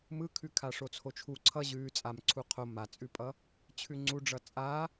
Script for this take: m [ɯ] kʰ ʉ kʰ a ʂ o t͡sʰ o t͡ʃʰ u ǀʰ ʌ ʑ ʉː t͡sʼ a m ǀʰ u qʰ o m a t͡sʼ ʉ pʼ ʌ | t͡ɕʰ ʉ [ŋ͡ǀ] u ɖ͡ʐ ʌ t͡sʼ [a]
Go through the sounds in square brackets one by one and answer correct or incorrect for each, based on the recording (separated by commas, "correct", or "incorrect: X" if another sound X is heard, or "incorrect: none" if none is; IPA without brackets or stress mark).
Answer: correct, correct, correct